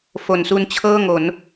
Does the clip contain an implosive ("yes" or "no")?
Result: no